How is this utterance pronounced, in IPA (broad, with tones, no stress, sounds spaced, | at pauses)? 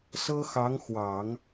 s ɤ˥ x ɑ˧˥ ŋ x w ɑ˨˩˦ ŋ